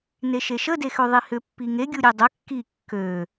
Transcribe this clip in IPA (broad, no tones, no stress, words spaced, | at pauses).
neʃeʃə dexøðˤihʏ pːiŋe ɡʲuɾʲedˤə kːi kːø